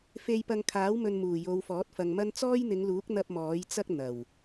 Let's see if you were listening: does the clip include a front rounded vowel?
no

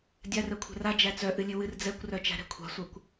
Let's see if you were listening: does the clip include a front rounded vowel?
yes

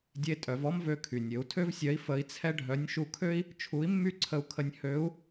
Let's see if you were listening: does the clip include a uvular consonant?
no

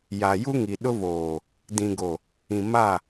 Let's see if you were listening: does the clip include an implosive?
yes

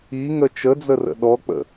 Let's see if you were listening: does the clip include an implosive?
yes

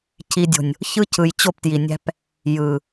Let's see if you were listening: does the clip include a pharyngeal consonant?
no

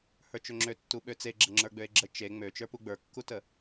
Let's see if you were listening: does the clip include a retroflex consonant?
no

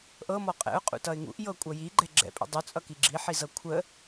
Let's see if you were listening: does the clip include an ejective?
yes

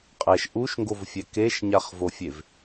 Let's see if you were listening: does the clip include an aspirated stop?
no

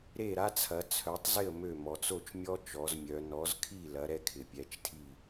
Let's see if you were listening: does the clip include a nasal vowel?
no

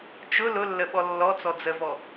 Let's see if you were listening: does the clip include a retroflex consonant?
no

